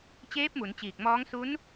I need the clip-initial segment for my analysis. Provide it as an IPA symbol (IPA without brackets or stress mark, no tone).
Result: t͡ɕ